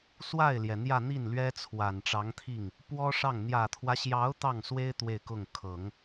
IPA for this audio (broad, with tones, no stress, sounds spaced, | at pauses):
s w a˥˩ ɪ̯ l j ɛ˩ n̪ j ä˥˧ n̪ i˥˩ n l ɥ ɛ˥ t͡sʰ w a˨˩ n ʈ͡ʂ ɑ˧˥ ŋ t̪ʰ i˥˩ ŋ | p w ɔ˥ ʂ ɑ˥˩ ŋ n̪ j ä˨˩ t̪ʰ w ä˦ ɕ j ɑ˧˥ ʊ̯ t̪ ɑ˥˩ ŋ s w e˥ ɪ̯ t̪ w e˥˧ ɪ̯ k ʊ˥˩ ŋ kʰ ɤ˨˩˦ ŋ